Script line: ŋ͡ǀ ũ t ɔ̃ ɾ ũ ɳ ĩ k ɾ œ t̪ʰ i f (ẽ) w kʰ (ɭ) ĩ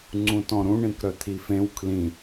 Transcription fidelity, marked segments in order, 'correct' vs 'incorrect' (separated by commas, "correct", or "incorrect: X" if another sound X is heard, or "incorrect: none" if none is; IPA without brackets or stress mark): correct, incorrect: l